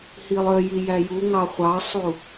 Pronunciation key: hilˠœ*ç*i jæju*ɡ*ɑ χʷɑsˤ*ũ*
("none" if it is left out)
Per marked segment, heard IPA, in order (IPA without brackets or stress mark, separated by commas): j, ŋ, u